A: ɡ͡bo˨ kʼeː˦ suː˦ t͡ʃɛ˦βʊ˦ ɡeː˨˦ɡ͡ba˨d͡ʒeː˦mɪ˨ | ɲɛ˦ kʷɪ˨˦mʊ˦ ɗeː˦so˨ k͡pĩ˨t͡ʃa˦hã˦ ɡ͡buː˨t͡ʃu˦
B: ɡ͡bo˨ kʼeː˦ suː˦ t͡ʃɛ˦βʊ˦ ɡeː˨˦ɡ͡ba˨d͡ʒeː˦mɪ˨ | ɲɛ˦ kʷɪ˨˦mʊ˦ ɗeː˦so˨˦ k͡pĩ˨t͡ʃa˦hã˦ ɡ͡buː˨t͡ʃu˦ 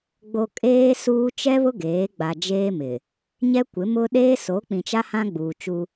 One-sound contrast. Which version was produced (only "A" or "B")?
B